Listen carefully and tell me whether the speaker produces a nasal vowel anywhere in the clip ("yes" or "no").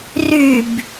no